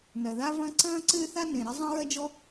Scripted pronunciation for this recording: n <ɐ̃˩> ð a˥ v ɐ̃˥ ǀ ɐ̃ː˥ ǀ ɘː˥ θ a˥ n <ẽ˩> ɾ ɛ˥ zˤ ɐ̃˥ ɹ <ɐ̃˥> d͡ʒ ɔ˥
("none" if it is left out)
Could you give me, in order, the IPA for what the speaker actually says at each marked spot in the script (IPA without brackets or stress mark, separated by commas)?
ɐ˩, ẽ˩, ɐ˥